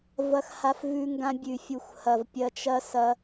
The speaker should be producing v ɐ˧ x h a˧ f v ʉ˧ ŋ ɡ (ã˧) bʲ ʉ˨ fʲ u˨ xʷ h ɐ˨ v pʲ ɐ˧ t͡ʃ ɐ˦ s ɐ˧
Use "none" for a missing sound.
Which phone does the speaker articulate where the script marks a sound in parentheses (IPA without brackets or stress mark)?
ã˧